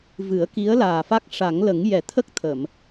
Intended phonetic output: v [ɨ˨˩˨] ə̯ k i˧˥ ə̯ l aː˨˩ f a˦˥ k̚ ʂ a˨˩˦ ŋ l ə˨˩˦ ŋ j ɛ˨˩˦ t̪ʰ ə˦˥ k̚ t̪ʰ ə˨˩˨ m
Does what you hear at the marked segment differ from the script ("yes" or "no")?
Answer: yes